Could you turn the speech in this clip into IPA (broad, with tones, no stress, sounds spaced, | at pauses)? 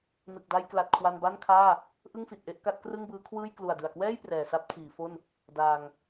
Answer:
n ɯ˨˩ k̚ d a˧ j k l a˨˩ t̚ kʰ w a˧ n b a˥˩ n kʰ aː˥˩ | ʔ ɯ˥˩ ŋ f i˨˩ t̚ ʔ e˥˩ ʔ k a˦˥ t̚ k r ɯ˥˩ ŋ b ɯː˦˥ kʰ w ɯː˥˩ j k l u˨˩ a̯ d ɯ˨˩ a̯ k w ɛː˥˩ j p r ɛː˨˩ s a˥˩ p̚ tʰ iː˩˦ f o˥˩ n | d aː˧ ŋ